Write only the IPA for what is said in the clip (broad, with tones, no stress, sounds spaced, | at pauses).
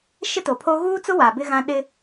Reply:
ʃ ɪ˦ t o˨ pʰ o˦ ɣ uː˦ t͡s ʊ˦ w a˨ b ɪ˦ ɣ ã˦ ɗ ɪ˦